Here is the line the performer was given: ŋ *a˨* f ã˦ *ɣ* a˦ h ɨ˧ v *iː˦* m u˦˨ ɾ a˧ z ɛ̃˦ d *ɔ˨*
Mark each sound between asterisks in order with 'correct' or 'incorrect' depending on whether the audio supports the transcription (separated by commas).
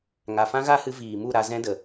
correct, correct, incorrect, incorrect